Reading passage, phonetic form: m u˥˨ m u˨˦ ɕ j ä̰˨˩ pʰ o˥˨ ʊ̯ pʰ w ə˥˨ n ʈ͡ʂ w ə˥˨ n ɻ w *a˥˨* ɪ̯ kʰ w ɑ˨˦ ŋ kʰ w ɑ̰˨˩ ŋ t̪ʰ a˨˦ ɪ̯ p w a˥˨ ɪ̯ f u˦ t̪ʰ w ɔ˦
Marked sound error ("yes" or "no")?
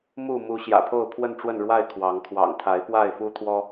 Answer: no